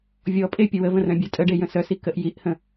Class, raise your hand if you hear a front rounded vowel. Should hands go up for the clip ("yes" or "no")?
yes